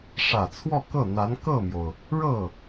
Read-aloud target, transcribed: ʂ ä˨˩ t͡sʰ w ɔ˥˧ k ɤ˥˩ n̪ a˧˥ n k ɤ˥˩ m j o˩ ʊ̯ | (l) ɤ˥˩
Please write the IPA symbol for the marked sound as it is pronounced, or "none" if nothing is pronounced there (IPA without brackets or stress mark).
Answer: ɻ